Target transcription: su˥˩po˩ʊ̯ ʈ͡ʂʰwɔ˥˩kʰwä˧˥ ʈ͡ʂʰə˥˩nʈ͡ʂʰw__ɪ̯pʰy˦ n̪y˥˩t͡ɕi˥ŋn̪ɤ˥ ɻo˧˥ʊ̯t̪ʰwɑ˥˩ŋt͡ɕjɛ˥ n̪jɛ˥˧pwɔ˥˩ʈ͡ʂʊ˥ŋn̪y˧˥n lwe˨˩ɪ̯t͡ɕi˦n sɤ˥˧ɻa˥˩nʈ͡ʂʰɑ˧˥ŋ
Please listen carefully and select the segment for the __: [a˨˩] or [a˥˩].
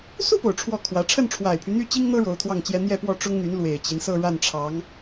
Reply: a˨˩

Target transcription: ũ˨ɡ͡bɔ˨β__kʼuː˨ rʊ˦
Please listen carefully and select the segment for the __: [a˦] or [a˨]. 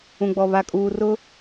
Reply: a˨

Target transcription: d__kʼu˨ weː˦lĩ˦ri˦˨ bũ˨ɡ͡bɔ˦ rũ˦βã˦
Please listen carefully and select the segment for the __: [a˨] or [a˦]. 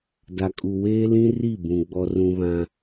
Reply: a˨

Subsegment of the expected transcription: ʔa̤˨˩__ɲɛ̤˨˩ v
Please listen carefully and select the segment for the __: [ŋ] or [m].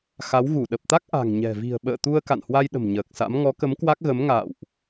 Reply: ŋ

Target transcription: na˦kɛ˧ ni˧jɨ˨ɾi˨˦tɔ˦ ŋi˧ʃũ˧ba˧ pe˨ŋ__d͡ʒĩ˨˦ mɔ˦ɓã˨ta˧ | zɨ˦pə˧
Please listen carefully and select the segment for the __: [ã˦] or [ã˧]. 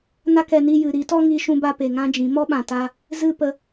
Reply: ã˦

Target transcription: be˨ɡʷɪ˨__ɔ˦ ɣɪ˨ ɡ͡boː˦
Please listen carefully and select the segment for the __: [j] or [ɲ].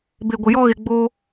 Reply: j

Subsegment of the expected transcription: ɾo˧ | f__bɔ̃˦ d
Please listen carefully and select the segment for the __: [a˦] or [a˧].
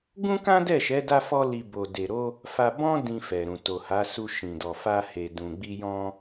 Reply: a˧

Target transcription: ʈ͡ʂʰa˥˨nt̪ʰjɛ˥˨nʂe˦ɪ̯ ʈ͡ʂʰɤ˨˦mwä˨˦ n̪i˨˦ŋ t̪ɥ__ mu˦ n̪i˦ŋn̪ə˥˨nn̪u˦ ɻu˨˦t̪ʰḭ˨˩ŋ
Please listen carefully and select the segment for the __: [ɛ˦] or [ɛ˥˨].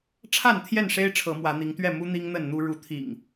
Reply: ɛ˥˨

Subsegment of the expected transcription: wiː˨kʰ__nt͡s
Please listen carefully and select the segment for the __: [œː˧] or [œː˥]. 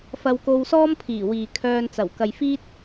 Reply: œː˧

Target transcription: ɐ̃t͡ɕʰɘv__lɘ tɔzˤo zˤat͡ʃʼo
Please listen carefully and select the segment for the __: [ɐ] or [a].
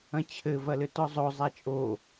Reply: ɐ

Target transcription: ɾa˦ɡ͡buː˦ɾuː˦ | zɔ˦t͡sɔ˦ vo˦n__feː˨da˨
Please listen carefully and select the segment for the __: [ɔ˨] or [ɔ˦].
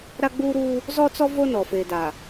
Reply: ɔ˨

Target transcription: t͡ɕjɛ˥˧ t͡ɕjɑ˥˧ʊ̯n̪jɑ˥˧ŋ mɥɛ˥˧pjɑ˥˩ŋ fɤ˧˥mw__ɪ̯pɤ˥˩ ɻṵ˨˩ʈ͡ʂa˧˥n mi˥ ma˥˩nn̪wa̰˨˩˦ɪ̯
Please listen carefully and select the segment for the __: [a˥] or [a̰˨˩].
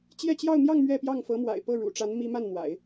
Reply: a̰˨˩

